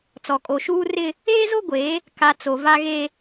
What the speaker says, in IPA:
t͡s ɔ˨ kʼ o˨ ʃ uː˦ r ɪ˦ | eː˦ z o˦ ɡʷ e˨˦ | k a˨ t͡s o˨ v a˦ ɣ e˦

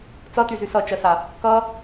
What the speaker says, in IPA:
t͡s ʌ t y z y s ʌ t͡ʃ ɜ s a | k ʌ

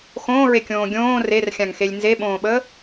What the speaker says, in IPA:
x õː ɹ e kʲ õː ɡʲ õː r e r xʲ ã ŋ x e lʲ n z e ɓ õː ɓ əː

